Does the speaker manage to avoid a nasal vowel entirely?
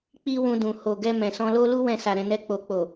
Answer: no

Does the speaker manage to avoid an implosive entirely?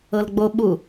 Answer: no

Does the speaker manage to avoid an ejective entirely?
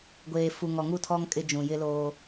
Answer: no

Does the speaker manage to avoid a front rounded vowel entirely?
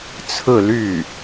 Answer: no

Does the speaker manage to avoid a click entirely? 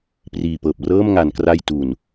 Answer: yes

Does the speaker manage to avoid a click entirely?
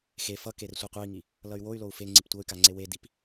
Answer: no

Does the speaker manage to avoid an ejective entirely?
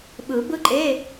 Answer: no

